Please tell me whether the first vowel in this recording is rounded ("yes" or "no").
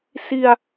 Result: no